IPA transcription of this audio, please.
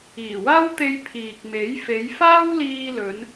iː˨˩ w aː˥ w t̪ e˧ j pʰ iː˨ k̚ m e˨˥ j f e˨˧ j f aː˥ w l iː˧ l ɵ˨˧ n

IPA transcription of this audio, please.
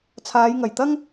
t͡sʰ aː˨˧ j ŋ ɐ˨˩ j t̪ ɐ˥ ŋ

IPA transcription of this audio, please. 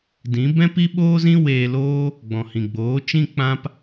d ĩ˨˦ b ɛ̃˦ p i˦ ɓ oː˦ z ĩ˦ w eː˧ l oː˦ | ɡ͡b ɔ̃˨ h ĩ˨ ɡ͡b oː˨˦ t͡ʃ ĩ˦ k͡p ã˦ p

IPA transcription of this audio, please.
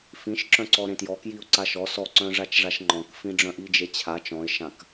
f ĩ ʃ ǁ œ̃ ǀ ɔ ɾ ẽ t j ɔ k j i ʊ̯ ǀ a ʃ ɔ s ɔ ǀ œ̃ ʐ a t͡ʃ ʐ a ʃ ŋ͡ǃ ɔ̃ k f ĩ ɖ͡ʐ œ̃ ʔ i d͡ʒ e t͡ɕʰ a t͡ʃ ɔ̃ ɪ̯ ʃ ã k

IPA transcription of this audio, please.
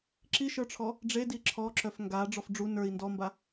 ǁ i ʃ ə˞ ʈ͡ʂʰ ɔ | ɖ͡ʐ e d i ǁʰ ɔ ǁ œ f ŋ ɡ a ɖ͡ʐ ɔ f ɖ͡ʐ u n ə˞ i̯ n d ɔ m b a

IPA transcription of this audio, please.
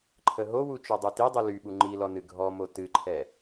ǃʰ ə ɦ o w u t͡ʃ œ dˤ u t i dˤ ɨ l y ɓ u ŋ͡ǃ i l ɔ n ɨ ɡʱ ɔ m o t ɨ ǃʰ ɛ

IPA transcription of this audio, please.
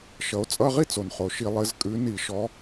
ʃ ʌ˨˦ o̯ t͡sʼ ʌ˧˥˧ ʁ i˥ t͡s o˩ n χ o˩ ʃ i˧˩˧ lˠ ɘ˨˦ z kʼ ʉ˨˦ n i˧˩˧ ʃ ɔ˨˦

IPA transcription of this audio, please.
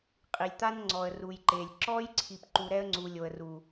qʼ i˨ lʲ t̪ a˦ n ŋ͡ǀ ɔ˨ ə̯ r u˨ j ǃ e˨ lʲ ǁ ɔ˦ j ǀʰ i˨ p ǃ u˨ ɾ ɛ˦ ə̯ ŋ͡ǀ u˨ lʲ o˨ ə̯ r u˨

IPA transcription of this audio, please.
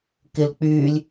k ɪ l k͡p yː lʲ

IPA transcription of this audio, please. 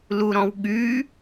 l u ɾ ɔ̃ w ɠ y

